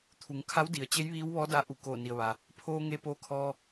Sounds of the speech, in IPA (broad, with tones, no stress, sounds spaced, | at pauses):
t̪ʰ u˩˧ ŋ kʰ a˧˥ w d i˩ ə̯ t͡ɕ e˧˥ j ʋ iː˧˥ w ʋ ɔː˧˥ d a˧˥ ʔ u˧˩ k oː˧˩ n i˩ ə̯ ʋ a˩ | pʰ oː˧ ŋ e˧ p oː˧ kʰ ɔː˧